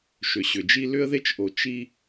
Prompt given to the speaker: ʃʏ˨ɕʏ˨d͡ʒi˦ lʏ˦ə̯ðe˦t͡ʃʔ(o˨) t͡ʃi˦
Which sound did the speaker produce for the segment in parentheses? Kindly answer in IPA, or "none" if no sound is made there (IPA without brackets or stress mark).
o˨